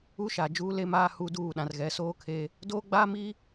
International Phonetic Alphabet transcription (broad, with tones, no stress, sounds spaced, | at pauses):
u˦ ʃ a˨ d͡ʒ uː˦ l e˦ m aː˦ h u˦ d uː˦˨ ɗ ã˨ r ɣ ɛ˨˦ s oː˦ kʰ e˦ | d oː˦ ɡ͡b aː˦ m i˦